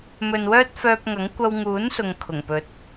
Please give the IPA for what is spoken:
m ɵ˨ n w œː˥ t̚ f œː˧ p̚ ŋ ɐ˨˥ ŋ kʷ ɐ˧ w ŋ uː˨˥ n s ʊ˨ ŋ kʰ ʊ˨˩ ŋ p ɵ˨˥ t̚

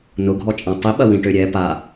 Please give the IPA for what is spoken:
n ʊ ɡʱ ɔ t͡ʃʼ ã tˤ i ɓ ɐ w ĩ ʈ ø ɾʲ ɛ p a

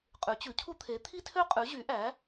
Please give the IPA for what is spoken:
qʼ ʉ˨˥ t͡ɕ ʉ˨˥ cʰ u˥ t̪ʰ e˨˥ t̪ʰ i˥ tʰ ø˥ qʼ ʉ˨˥ ʑ y˨˥ ʔ æ˨˥

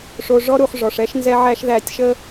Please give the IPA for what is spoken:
ʂ o˧ ʐ ɔ˧ ɾ u˨ χ ʐ ɔ˨ ʂ ɛ˦ ʃ n z ɛ˦ ʕ æ˦ ʃ ð æ˧ tʲ ʃ ə˦

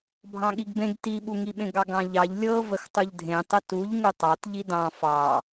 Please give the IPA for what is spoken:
bʱ ɑ̃ ɠ i ɡ b ẽ ɡ t i ɓ u ŋ i ɓ ẽ ɡ ɑ ɡ ɑ̃ ʎ ɑ ʎ lʲ ɤ v ə x tˤ u ʎ dʱ ẽ tˤ ə t u ʎ ŋ u tˤ ɑ t ʎ i d ɑ̃ f ɑ

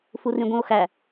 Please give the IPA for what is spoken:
f u r ĩ ɡʷ ĩ o̯ x æ

